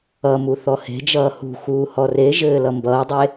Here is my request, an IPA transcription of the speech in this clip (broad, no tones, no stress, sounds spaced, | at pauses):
ʌ m u θ ɔ h e̤ d͡ʒ ʌː h ṳ x uː h ɔ r e ʒ ɘː l ʌ m b ʌː dˤ e